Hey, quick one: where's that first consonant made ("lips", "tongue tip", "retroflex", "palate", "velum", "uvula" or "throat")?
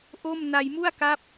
throat